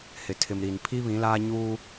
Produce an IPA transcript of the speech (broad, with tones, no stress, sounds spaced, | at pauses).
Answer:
h ɪ˨ tʰ ɪ˨ m ɾ i˨ n pʰ i˦ β ĩ˨˦ l aː˦ ɲ uː˦